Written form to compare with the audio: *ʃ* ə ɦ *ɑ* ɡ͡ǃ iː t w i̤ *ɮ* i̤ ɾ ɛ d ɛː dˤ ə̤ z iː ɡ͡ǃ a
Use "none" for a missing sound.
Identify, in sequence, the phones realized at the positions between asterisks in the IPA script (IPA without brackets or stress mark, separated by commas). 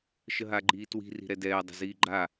ʃ, a, r